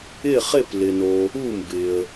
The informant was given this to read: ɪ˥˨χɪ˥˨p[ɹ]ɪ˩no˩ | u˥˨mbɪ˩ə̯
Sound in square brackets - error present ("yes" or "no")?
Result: yes